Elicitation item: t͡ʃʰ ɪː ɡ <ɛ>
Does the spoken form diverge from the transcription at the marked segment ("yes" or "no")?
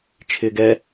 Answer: no